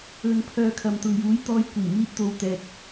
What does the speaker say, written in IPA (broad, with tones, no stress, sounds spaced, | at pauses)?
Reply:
ɵ˨ n pʰ œː˨ kʰ ɐ˨ m t̪ ʊ˨ ŋ j uː˨˥ j t̪ ɔː˨˧ j kʷ iː˨˩ m iː˧ t̚ t̪ o˨˧ w t̪ ɛː˨ k̚